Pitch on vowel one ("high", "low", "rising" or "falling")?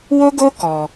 high